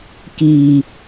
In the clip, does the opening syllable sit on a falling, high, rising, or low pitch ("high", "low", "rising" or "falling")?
low